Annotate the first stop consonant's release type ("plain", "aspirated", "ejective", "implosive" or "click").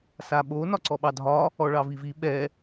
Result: implosive